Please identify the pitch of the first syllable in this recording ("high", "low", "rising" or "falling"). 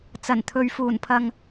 low